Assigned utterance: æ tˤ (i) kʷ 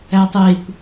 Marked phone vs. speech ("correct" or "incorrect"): incorrect